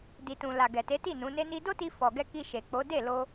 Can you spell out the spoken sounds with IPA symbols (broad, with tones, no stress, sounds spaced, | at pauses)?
d i˨ t ũ˨ l a˨ ɡ ɛ˨ t e˨˦ t i˦˨ n ũ˨˦ n e˦ n i˦ d o˦ t i˧ f ɔ˨ ɡ ɛ˧ k i˧ ʃ e˨ k͡p o˨˦ d e˦˨ l o˧